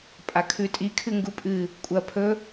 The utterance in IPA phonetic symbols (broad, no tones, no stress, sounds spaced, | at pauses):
pʼ a kʰ ʉ tʼ i kʰ ɨ ŋ ɡ u pʼ ɨ | kʷʼ ɐ pʰ ɵ